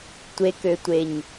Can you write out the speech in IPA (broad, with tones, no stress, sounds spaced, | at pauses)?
tʷ e˨ k ø˨ tʷ e˨ ɲ